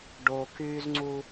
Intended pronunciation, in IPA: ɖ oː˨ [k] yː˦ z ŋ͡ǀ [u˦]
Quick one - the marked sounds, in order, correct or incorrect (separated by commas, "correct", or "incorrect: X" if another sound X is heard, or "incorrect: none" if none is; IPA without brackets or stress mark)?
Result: correct, correct